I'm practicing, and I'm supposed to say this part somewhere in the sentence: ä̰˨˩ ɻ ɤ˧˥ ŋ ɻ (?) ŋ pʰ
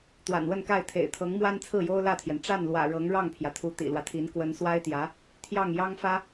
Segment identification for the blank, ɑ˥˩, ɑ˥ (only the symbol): ɑ˥˩